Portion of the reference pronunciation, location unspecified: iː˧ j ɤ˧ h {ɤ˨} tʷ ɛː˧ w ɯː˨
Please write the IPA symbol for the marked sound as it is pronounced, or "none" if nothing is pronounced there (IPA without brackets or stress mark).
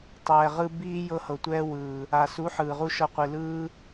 ɤ˨